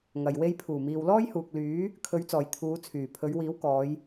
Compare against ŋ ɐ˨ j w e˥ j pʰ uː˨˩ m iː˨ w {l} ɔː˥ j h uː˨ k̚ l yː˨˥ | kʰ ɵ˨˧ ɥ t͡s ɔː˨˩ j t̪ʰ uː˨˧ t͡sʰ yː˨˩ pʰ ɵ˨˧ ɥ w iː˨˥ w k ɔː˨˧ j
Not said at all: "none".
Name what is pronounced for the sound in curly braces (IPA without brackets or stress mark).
l